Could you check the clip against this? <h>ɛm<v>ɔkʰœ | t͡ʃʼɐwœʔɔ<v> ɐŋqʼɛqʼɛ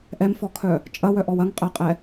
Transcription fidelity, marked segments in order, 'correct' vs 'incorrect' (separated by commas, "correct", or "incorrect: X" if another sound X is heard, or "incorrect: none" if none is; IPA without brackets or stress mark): incorrect: ʔ, incorrect: f, incorrect: w